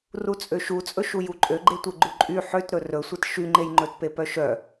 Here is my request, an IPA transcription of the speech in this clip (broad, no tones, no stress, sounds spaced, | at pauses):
r u t͡sʼ ø ʃ u t͡sʼ ɵ ʃ u j u ǃʼ ø ɡ͡ǃ e tʷ e ɡ͡ǃ u ǃʼ y ħ ø t ɾ ɵ r ɵ sʷ e t ʃ y ŋ͡ǃ e j ŋ͡ǃ ɵ t p e p œ ʃ œ